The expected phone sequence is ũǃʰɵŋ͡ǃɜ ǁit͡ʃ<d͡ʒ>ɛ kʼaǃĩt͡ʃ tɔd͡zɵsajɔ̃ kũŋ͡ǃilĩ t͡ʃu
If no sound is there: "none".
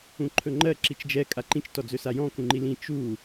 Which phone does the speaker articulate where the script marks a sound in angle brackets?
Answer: d͡ʒ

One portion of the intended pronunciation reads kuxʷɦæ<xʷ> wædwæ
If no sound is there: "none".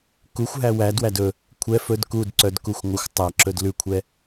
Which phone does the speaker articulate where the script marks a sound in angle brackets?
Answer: none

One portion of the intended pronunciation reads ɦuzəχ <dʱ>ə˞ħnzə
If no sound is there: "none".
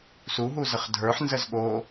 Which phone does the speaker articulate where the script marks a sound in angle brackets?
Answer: dʱ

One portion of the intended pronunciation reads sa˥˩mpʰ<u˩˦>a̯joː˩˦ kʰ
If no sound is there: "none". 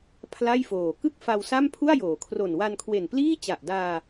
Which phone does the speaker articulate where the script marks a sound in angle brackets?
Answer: u˥˩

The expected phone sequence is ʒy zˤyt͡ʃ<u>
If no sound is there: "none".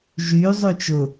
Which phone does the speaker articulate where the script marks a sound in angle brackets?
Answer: ʊ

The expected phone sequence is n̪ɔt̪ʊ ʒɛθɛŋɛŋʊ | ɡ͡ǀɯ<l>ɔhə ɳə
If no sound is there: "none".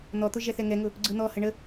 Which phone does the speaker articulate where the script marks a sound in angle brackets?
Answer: n̪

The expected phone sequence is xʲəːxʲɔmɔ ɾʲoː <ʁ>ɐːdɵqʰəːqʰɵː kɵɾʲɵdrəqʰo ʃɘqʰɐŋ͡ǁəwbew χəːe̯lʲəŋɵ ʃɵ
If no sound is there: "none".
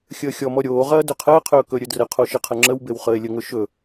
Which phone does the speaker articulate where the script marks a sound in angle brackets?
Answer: ʁ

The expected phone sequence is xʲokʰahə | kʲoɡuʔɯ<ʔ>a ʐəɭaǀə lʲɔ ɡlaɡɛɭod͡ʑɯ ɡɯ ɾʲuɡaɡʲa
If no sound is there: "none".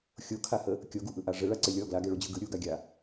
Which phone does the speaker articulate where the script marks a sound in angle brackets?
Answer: ʔ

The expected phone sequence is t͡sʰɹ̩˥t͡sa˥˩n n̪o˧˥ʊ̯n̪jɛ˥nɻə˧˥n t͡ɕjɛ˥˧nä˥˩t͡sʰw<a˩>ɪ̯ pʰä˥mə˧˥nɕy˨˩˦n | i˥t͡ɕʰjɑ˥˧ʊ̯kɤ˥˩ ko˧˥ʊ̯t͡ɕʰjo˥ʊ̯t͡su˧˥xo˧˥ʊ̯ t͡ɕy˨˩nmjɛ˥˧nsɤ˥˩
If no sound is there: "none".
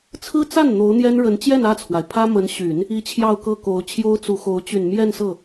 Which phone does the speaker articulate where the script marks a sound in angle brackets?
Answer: a˩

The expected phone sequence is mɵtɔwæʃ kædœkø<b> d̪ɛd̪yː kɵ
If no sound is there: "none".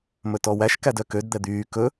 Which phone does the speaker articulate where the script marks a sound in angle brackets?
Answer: d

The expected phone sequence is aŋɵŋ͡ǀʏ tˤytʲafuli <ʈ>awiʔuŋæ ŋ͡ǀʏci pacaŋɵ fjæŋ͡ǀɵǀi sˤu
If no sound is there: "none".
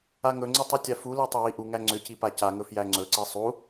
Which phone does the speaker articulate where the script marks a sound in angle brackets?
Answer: tˤ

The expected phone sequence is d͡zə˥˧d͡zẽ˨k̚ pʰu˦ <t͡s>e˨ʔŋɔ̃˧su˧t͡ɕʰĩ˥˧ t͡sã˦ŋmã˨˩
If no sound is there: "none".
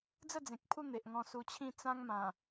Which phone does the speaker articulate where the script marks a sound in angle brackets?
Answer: n̪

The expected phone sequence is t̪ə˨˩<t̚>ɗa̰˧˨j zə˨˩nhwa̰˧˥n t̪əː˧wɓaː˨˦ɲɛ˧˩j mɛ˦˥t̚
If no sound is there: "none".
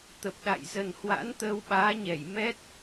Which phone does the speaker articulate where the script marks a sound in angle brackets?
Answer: p̚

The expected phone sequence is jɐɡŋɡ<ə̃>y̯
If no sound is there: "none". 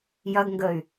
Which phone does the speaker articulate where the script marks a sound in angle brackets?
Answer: ə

